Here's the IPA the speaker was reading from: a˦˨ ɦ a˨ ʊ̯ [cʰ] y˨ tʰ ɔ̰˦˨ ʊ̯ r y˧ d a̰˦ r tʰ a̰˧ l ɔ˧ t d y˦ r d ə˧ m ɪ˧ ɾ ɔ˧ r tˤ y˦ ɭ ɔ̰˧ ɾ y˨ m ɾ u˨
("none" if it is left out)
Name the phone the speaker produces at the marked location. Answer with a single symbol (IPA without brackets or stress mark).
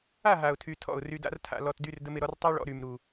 tʰ